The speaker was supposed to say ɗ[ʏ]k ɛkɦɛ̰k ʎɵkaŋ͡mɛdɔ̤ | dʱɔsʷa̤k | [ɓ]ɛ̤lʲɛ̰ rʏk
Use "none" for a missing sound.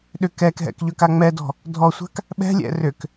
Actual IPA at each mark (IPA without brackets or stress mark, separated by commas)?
ʏ, ɓ